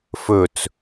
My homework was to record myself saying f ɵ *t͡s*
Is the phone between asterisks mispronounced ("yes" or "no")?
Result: no